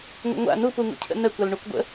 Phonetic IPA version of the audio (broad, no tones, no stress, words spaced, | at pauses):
ŋə̰ŋʷa̰ nupuŋṵcʰə̰ nəkʷal ɳukʷɡʷə̰